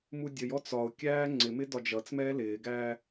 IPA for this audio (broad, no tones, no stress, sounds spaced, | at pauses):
m u dʲ ə j ɔ t͡s ɒ ʊ̯ kʲ æː ŋ͡ǀ ɪ m ɪ d ɒ d͡ʒ ʌ t͡s m ɛː l ɪː ɡ æː